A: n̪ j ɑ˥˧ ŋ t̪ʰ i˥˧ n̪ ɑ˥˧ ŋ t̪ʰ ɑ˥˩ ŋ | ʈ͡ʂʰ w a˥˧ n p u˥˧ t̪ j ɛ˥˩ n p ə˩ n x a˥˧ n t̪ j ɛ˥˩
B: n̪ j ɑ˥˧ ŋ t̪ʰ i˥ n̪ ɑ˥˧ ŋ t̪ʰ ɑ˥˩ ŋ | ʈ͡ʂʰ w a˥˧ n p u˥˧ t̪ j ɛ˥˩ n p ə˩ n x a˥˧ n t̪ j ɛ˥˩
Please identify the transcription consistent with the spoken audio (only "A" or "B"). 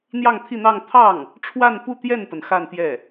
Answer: A